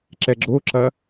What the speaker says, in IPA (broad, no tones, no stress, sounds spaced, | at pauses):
ǁ ɛ ɡ͡ǁ o ǁ ɐ